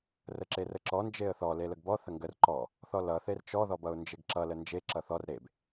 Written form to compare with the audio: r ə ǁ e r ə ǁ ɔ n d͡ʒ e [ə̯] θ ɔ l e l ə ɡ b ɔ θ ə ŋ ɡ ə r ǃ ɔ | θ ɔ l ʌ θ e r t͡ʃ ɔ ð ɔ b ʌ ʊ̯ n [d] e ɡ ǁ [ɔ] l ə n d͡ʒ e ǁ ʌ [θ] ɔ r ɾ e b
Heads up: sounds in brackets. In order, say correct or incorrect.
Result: correct, incorrect: d͡ʒ, incorrect: ʌ, correct

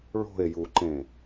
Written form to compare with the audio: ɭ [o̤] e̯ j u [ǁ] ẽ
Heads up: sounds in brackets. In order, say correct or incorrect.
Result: correct, incorrect: ǃ

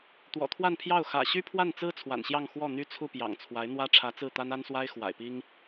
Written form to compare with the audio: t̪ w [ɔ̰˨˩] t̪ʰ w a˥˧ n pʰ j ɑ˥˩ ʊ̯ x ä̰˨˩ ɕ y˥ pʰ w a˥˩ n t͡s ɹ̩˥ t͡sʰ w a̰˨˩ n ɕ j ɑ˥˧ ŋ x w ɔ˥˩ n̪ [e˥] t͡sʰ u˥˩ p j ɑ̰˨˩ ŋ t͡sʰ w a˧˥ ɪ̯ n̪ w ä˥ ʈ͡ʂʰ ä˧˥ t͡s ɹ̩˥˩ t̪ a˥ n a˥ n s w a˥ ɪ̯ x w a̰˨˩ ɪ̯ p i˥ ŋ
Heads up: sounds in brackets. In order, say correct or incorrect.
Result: correct, incorrect: y˥

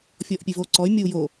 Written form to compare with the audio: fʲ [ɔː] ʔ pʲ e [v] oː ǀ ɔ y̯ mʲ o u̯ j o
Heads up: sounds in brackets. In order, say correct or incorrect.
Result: correct, correct

